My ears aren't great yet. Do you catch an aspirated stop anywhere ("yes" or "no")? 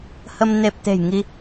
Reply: no